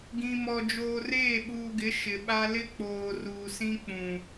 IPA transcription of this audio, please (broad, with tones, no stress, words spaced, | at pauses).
ɡĩ˨mɔ˨ d͡ʒoː˨reː˦˨ɓuː˨ɡɪ˨˦ ʃɪ˨ɓa˦ lɪ˦k͡poː˨ ruː˨sĩ˦k͡pũ˨